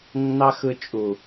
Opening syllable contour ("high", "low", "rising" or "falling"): high